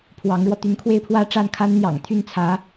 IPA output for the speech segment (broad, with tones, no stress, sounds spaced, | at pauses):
pʰ w ɑ˧˥ ŋ ɻ w ɔ˧ t̪ y˧˥ n kʰ w e˥˧ ɪ̯ pʰ w ä˥˧ ʈ͡ʂ a˥˩ n kʰ a˥ n n̪ j ɑ̰˨˩ ŋ t̪ʰ y˥˩ n t͡sʰ ä˧˥